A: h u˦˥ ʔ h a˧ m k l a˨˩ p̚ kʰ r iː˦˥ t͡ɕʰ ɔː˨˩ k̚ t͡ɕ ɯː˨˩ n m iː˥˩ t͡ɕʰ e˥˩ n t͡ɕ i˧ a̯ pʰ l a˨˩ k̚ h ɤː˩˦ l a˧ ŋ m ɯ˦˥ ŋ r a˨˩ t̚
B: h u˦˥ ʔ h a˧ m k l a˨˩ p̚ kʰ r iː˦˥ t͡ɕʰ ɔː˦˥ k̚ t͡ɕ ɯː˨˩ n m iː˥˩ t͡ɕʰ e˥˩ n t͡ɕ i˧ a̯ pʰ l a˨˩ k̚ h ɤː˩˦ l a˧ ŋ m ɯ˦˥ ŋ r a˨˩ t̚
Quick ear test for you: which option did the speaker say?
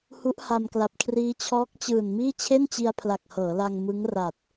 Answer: B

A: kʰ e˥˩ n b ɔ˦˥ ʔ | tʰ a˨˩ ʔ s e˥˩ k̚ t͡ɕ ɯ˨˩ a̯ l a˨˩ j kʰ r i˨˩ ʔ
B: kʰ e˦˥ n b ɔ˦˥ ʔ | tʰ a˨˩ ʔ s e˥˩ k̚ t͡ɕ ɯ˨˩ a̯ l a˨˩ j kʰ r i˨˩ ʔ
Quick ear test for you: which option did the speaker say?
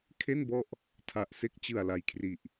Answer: A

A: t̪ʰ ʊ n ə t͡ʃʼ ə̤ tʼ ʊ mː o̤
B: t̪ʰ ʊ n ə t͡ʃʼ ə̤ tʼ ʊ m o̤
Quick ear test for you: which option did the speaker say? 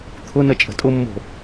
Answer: A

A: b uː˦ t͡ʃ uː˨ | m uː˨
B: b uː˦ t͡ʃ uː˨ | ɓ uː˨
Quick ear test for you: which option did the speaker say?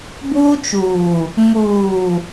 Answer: A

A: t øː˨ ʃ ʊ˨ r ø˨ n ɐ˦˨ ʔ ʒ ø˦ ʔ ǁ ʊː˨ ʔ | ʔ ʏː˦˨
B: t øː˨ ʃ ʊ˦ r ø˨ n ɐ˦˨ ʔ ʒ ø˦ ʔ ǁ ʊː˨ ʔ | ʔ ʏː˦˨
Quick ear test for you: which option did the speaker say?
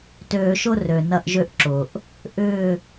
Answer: B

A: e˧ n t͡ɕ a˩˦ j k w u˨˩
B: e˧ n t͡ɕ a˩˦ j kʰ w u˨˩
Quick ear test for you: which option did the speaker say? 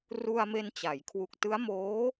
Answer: B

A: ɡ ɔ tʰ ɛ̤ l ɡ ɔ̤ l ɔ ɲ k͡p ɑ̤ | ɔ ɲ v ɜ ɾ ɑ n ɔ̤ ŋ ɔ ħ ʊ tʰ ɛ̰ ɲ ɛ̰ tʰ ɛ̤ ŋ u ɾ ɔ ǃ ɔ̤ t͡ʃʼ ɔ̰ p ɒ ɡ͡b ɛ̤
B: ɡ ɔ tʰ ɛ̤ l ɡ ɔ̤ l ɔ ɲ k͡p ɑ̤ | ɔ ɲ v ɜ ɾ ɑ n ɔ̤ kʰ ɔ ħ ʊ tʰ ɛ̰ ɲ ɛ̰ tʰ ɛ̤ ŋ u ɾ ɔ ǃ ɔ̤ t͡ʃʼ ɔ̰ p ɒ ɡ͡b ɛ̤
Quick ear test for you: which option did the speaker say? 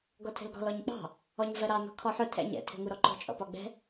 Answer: B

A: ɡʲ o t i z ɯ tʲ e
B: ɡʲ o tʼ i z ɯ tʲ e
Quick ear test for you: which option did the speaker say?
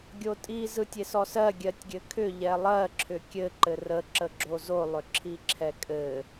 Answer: B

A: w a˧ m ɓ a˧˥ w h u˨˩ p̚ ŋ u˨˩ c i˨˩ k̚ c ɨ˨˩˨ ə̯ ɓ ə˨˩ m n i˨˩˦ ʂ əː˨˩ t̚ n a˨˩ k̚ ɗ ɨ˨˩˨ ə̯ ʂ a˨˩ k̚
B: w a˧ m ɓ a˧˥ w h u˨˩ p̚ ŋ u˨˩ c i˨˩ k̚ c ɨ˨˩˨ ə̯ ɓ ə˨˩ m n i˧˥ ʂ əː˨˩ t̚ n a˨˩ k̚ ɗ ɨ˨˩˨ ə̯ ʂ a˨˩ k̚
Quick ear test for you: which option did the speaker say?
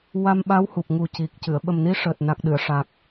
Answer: B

